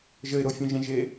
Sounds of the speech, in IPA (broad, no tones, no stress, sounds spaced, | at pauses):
ʒ ə ɪ̯ ɾ o fʲ œ̃ ʒ ɛ̃ ʒ e